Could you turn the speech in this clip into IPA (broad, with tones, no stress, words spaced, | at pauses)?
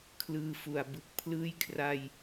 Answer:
kʰlɯː˧fu˨˩a̯ bɯ˨˩k̚ pʰlɯː˦˥jkʰra˧j